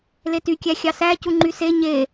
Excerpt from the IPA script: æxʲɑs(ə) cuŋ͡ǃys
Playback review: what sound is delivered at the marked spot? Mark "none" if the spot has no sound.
æ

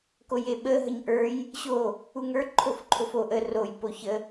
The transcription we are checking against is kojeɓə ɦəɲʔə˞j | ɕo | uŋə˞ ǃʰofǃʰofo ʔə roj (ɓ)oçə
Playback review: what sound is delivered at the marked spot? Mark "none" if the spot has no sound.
p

